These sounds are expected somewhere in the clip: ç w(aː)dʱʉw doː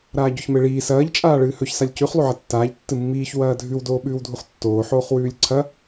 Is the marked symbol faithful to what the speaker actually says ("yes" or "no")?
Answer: no